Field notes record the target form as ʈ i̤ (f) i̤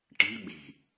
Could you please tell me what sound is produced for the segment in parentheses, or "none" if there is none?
ɓ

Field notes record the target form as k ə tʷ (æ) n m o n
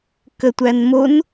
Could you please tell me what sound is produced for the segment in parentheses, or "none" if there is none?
æ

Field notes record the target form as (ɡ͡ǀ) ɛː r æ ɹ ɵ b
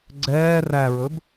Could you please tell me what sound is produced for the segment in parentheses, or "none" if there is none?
ɡ͡ǀ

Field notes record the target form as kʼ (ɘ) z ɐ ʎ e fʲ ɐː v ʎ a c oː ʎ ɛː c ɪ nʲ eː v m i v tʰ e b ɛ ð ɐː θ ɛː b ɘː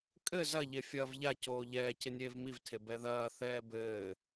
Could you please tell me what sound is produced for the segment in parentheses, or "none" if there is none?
ɘ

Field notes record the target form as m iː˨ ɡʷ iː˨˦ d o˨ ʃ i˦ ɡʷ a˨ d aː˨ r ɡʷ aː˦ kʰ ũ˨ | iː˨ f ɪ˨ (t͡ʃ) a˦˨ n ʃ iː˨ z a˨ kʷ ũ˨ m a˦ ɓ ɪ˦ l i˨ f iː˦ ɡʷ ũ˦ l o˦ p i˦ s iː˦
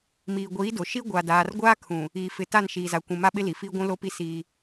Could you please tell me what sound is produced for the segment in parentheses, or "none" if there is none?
t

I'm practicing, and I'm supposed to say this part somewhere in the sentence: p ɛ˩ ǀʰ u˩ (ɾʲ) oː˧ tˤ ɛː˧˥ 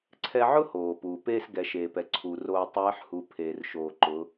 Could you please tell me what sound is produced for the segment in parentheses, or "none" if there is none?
r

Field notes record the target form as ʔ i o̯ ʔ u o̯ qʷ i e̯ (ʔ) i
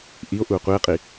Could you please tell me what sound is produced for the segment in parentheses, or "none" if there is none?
qʼ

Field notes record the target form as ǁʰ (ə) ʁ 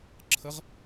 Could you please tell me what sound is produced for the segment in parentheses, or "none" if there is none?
ə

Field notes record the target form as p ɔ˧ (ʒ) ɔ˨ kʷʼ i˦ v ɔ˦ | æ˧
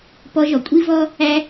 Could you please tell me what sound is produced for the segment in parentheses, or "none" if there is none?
ʒ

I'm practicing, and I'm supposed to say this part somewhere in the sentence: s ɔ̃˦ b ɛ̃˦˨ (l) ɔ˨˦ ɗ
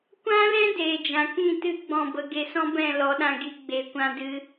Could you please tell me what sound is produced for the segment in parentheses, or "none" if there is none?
l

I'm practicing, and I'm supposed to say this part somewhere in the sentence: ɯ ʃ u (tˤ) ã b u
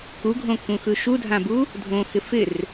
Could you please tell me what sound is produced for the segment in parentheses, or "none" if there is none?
dʱ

